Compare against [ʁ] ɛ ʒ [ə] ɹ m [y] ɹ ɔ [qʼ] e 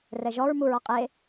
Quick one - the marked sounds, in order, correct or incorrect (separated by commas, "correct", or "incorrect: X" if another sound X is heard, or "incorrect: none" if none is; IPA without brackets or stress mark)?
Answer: incorrect: r, incorrect: ɔ, incorrect: u, correct